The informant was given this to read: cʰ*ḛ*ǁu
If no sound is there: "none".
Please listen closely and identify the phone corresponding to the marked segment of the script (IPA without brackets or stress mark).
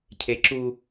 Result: e